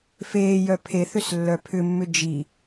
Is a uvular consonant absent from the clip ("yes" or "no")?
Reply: yes